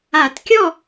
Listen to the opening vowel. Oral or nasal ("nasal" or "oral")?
oral